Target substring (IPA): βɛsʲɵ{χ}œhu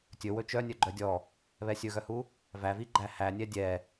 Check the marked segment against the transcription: incorrect: ɣ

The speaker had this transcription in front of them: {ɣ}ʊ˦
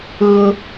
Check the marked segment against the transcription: correct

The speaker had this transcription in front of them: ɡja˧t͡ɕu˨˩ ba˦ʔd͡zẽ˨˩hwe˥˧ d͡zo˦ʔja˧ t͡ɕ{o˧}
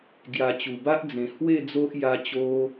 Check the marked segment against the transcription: correct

